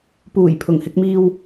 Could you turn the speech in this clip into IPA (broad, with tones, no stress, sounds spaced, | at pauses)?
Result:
p uː˨˩ j pʰ ʊ˨˩ ŋ h ɪ˧ k̚ m iː˧ w